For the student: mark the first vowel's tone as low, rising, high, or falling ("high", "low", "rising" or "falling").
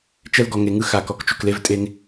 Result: high